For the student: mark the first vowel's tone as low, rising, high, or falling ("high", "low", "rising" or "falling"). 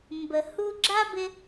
low